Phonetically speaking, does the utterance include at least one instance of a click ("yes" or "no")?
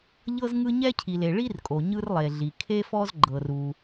yes